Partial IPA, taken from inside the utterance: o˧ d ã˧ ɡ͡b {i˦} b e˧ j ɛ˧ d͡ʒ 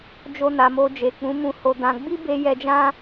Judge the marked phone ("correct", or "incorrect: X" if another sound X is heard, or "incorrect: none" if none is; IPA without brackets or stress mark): correct